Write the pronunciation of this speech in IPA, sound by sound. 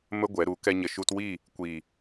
mə˦ ɡʷɛ˨˦ ɾu˨˦ kɛ˦ɲə˧ ʃu˧twi˦˨ | kʷiː˨

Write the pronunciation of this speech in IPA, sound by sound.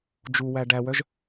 d͡ʒuwæ ɖæwœʒ

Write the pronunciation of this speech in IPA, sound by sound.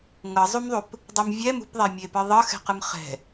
ŋɤzˤumðˤup | dˤemvʲɛ mṳpðˤɛmʲepɯ ðˤɤxɛ̤qɯm χɛ̤

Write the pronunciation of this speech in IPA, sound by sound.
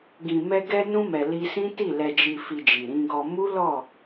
ɡĩ˨mɛ˧ ɡɛ˧ nũ˧mɛ˨ li˧sĩ˦ti˦˨ lɛ˨d͡ʒi˨fi˨ d͡ʒi˨ɾĩ˧ɡɔ˧ mu˦lɔ˦˨

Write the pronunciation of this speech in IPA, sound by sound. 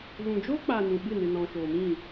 ɣũ˨d͡ʒo˦k͡pa˨ nũ˨ɓɨ˦˨ nɨ˨nɔ̃˨ʃoː˨mĩ˦˨

